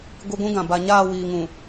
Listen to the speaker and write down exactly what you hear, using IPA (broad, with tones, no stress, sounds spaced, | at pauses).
ɡʷ i˦ ɡʷ ũ˦ ɡ ã˨ b a˨ ɲ aː˦˨ w iː˨ ŋ ũ˨